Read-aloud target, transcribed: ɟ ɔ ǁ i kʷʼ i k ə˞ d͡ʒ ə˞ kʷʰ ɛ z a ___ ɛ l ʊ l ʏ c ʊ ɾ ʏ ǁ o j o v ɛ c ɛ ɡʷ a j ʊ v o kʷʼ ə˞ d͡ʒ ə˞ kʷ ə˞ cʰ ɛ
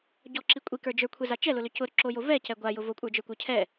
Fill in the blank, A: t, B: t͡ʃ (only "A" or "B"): B